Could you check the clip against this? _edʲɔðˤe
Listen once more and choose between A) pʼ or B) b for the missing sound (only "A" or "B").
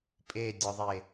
A